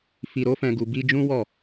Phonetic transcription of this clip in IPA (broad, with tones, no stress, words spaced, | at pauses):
fi˧ɾo˦fɛ̃˧ ɡu˧bi˦ d͡ʒũ˦wɔ˦˨